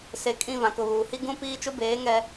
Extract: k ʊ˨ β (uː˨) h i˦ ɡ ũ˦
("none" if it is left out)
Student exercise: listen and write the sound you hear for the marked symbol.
uː˨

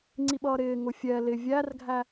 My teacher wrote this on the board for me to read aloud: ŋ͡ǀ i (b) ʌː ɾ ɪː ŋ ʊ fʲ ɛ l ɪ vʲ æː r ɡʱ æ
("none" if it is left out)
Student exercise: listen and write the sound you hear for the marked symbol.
ɓ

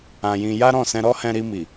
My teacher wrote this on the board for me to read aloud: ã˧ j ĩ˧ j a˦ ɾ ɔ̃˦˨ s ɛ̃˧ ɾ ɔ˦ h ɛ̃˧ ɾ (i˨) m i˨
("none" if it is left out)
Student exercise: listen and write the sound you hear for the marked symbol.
i˧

